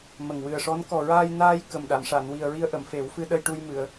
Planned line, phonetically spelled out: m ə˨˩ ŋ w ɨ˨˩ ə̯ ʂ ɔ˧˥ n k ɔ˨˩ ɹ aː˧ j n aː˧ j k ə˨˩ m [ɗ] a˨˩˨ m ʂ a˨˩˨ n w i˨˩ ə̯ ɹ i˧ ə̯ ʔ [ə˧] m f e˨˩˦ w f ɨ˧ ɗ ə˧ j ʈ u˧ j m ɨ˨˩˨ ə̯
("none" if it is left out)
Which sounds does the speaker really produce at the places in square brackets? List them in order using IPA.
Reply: ɗ, ə˨˩˨

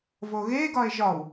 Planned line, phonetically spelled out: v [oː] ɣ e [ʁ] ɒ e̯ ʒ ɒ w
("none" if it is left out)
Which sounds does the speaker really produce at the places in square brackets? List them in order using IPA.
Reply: o, ɡ

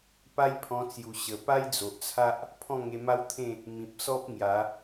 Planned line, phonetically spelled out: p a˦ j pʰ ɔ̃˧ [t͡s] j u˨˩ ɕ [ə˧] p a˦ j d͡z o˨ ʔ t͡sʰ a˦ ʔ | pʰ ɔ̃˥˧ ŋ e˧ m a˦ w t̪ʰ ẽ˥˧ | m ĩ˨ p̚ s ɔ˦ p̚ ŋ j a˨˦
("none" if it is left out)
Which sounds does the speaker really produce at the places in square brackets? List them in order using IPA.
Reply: t͡s, ə˨˩

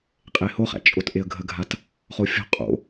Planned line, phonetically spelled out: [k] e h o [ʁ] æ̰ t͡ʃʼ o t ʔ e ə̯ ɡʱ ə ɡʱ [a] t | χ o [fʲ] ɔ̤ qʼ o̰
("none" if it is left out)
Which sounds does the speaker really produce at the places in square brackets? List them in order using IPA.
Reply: qʼ, χ, a, fʲ

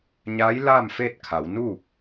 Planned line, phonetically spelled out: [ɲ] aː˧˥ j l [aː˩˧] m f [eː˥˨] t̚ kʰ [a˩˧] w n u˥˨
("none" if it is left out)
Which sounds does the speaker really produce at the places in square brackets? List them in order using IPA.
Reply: ɲ, aː˥˨, eː˥˨, a˩˧

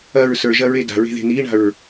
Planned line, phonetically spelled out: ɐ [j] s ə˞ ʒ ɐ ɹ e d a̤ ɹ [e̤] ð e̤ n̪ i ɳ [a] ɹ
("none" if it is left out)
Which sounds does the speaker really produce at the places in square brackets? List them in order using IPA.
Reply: ɹ, e̤, a̤

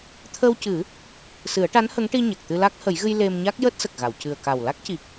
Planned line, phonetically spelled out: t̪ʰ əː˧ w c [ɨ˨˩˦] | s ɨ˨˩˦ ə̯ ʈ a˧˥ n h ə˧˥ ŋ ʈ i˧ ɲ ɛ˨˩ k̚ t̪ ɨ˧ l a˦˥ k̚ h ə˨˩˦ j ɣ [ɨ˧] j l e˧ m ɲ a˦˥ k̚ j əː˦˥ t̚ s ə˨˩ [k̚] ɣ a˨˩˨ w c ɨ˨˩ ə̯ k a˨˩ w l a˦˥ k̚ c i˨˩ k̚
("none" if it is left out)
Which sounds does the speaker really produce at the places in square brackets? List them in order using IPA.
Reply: ɨ˨˩˦, ɨ˧, k̚

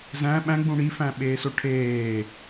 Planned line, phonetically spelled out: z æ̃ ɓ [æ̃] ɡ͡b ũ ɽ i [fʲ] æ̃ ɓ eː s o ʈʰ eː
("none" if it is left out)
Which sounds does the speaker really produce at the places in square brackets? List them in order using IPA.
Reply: æ̃, f

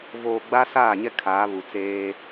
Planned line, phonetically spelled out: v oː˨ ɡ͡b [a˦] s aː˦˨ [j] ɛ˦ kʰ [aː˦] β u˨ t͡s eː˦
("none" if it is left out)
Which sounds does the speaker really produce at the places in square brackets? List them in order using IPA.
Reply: a˦, ɲ, aː˨˦

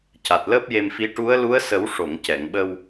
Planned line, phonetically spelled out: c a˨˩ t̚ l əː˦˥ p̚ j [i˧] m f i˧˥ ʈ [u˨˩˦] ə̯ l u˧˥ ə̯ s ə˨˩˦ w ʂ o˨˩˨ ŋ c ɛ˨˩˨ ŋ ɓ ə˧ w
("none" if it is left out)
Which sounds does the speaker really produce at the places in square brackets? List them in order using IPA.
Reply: e˧, u˧˥

